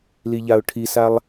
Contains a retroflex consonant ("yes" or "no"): yes